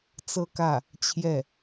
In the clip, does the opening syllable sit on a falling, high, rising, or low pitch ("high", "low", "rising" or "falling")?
falling